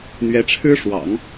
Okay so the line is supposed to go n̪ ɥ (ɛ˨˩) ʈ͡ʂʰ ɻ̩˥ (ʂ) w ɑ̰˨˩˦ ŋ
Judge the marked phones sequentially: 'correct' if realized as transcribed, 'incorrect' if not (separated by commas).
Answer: incorrect, correct